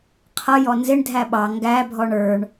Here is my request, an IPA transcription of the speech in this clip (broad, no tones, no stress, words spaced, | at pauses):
qʰʌ jɔnzɪɳ dʱæɓɑ ŋɡæbʱɔɳ ə˞ɳ